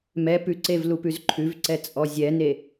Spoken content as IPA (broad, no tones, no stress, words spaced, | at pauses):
mɛ pʉǀev lupʉzǃʰʉvǀɛ t͡sʼɔzʲɛne